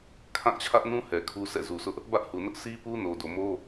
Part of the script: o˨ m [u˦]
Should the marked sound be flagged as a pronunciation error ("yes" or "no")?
yes